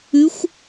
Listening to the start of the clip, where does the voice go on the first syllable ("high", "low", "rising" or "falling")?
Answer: rising